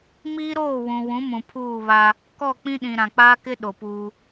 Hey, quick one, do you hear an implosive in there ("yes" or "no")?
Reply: yes